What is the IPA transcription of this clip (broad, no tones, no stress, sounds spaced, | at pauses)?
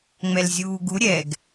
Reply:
ŋ͡m ɛ l zʲ uː ɡ u ɾʲ ɛ ɡ